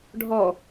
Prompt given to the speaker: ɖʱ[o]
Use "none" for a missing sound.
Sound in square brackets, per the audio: ɔ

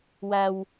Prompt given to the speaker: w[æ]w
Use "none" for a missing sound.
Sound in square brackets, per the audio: æ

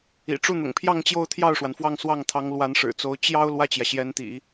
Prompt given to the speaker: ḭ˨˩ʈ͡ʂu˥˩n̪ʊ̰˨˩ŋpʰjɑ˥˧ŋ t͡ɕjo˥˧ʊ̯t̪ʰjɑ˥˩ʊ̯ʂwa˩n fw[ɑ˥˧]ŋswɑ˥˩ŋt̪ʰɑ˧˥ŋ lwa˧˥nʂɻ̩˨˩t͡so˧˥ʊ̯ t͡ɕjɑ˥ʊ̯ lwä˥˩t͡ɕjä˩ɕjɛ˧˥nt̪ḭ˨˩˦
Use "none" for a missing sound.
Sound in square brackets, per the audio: ɑ˥˧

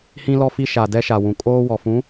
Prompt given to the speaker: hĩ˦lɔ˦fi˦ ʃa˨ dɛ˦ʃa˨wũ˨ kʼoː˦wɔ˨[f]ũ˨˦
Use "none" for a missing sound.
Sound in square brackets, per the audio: f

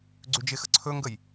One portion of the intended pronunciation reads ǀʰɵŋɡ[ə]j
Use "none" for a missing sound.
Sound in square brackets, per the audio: ə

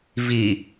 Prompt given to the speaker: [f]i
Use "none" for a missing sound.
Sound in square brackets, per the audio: v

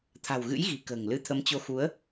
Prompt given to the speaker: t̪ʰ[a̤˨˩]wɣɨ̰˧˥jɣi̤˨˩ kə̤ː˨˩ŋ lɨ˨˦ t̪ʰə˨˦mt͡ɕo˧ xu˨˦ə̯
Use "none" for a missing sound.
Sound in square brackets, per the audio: a̤˨˩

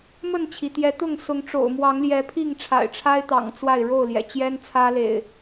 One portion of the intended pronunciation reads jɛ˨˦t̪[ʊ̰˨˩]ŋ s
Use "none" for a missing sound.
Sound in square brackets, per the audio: ʊ˥˨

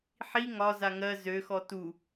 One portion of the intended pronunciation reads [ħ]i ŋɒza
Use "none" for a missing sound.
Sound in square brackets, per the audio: ħ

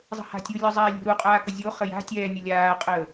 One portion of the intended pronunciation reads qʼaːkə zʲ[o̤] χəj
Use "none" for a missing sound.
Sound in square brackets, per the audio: o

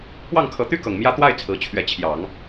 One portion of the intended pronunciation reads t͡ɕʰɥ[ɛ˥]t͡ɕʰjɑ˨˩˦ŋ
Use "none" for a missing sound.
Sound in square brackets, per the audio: ɛ˧˥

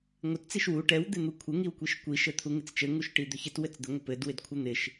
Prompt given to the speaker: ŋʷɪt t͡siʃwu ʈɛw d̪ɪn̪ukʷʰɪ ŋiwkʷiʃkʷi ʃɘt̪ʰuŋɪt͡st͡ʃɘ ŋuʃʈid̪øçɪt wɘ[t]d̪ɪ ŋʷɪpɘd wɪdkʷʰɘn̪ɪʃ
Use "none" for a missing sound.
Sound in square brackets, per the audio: t͡s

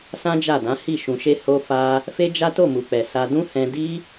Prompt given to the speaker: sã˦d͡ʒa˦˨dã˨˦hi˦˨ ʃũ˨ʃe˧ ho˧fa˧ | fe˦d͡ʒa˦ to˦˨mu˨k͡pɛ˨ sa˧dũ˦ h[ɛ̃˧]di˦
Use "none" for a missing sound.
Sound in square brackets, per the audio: ɛ̃˧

